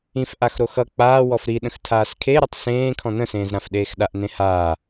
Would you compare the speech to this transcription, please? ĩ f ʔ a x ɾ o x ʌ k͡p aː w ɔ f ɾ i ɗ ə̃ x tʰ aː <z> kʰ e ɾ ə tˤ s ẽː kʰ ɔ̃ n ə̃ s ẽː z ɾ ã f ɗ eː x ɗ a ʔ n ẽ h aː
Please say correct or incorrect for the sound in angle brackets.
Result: incorrect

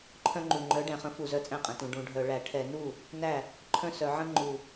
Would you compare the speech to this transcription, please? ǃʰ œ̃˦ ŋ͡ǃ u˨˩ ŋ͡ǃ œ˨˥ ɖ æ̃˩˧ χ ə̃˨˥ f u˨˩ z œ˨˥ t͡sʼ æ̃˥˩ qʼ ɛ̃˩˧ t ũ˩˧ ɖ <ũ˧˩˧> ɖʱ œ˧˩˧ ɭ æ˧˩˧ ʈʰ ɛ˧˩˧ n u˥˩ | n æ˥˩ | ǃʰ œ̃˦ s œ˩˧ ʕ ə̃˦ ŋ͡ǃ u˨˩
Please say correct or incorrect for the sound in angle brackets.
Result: correct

